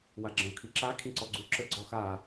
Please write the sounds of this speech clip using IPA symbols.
w a ɡ͡ǁ ə̃ ʊ̯ kʰ i ǁ a kʰ ĩ ǀ ɔ ɡ͡ǀ u ǁ ə ɡ͡ǀ ɔ x a

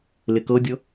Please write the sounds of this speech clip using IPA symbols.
l ɪ k ɤ dʲ ɤ

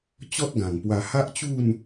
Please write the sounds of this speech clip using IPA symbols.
t͡ɕ ɔ˦ t̚ ɡ ã˨˩ ŋ p w a˧ h a˦ ʔ t͡ɕ u˥˧ n

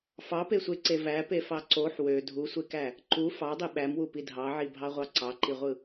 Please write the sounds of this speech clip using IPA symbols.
f ɑ p e sʷ e ǀ e v æ p e f ɑ ǀ o ħ w ø dʱ u sʷ e k æ | ǃ u f ɑ dˤ i ɓ æ m w u p i dʱ ɑ ʕ i bʱ ɑ ʁʷ ɑ ǀ ɑ ǃ i ʁʷ ɯ

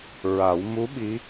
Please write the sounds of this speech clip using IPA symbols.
ɹ a˨˩˦ w m u˧˥ ɓ i˧˥

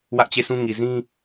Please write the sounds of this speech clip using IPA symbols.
w ä˦ ʔ t͡ɕ e˦˨ sʰ ũ˦ ŋ i˨ z ĩ˦

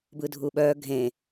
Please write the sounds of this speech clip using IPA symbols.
b ɯ dʱ u ɓ œ ɡʱ ẽ

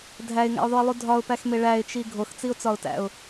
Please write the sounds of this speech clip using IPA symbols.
dʱ æ ɪ̯ ŋ æ̰ ʊ̯ ðˤ u ɪ̯ lˠ u dʱ ɒ ʊ̯ p æ x m e ɭ æ ɪ̯ t͡ʃ i ɡʱ o x t͡s i ʊ̯ t͡s ɒ ʊ̯ t æ̰ ʊ̯

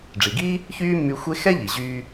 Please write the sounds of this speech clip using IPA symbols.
ɖ͡ʐ i˩ ɡ iː˥ | ç yː˥ mː y˧ xʷ e˧ x ɛ˥ ʎ i˩ ʑ yː˧

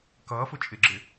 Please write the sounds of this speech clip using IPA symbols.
k ʌː f ʊ t͡ʃʼ ɪ ɡ͡ǁ ɪ

